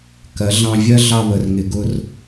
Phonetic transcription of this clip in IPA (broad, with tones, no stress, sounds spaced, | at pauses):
k ɜ˨˦ ɮ ɑ̃˧ vʲ ɜ˦ ɮ ɑ˧ β ə˨ r ŋ ɪ˨ ɡ ʊ˧ r